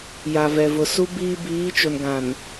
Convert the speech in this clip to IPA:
j a˨ v ɛ˨ v ʊ˨ s u˦ b iː˦ b iː˨˦ t͡ʃ o˨ n ɡ ã˨ n

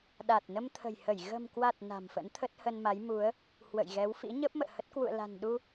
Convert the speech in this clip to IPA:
ɗ a˨˩ t̚ n ə˧ m t̪ʰ ə̤˨˩ j h ə˧˩ j ɣ ə̤˨˩ m k w a˨˩ t̚ n a̤˨˩ m f ə̰˧˥ n t̪ʰ ə˦˥ t̚ h ə˧ n m a˨˦ j m u˨˦ ə̯ | h w ə̰˧˨ j ɣ ɛ˨˦ w f ḭ˧˥ ɲ ə˦˥ p̚ m ə̰ː˧˨ h ə˦˥ t̚ k w ṵ˧˨ ə̯ l a̤˨˩ n ɗ u˧

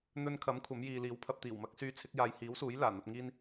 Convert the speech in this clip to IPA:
n̪ ɵ˧ n kʰ ɐ˨˥ m kʷʰ ɐ˨˥ m j iː˨ l iː˨˥ w pʰ ɐ˧ p̚ t̪ iː˨˩ w m ɐ˧ k̚ s yː˧ t͡sʰ ɪ˨˥ k̚ j aː˨ j h iː˨˥ w s uː˨˥ j l aː˨˩ n̪ ɐ˧ p̚ ŋ iː˥ n

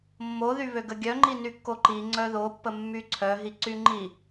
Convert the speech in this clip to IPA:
mː o ð y β ø ɡ ə ɡʲ œ ŋ͡ǃ i n y kː o ǃ i ŋ͡ǀ œ ð o pː ə mː y ǀʰ œ ɦ i ǀ y ŋ͡ǃ i

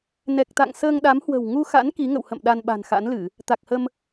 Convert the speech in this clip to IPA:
n ɛ˨˩ k̚ t̪ a̰˧˨ ŋ s əː˧ ŋ ɗ a˨˦ m h w ə̤˨˩ w ŋ u˧ x a̰˧˥ n k i˨˦ ŋ ə̰˧˨ w h ə̰˧˨ m ɗ a˧ n ɓ a̤˨˩ n x a̰˧˥ n l ɨ˧˩˨ | t̪ a˨˩ k̚ h ə˧ m

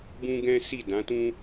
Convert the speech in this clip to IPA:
b ũ˦ ɡ ɛ̃˦ s i˦˨ d ã˨˦ t ũ˦

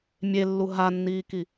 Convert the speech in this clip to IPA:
mʲ e lː u ɦ a nː iː k i

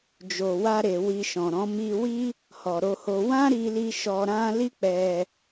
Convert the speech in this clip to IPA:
d͡ʒ o˨ w a˧ ɾ e˨ w i˧ ʃ ɔ̃˨ ɾ ɔ̃˨˦ m i˧ w i˦ | h ɔ˨ ɾ o˧ h o˧ w ã˦ ɾ i˧ l i˧ ʃ ɔ˧ ɾ ã˦ l i˦ k͡p ɛ˧

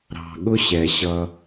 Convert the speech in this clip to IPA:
ɾ ɑ̤˨ ɠ ʊ˦ ɕ ɛ˨ ɕ ʌ˧

